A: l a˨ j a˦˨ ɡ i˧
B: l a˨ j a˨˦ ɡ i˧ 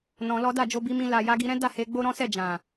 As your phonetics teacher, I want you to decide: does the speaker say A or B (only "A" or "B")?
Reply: B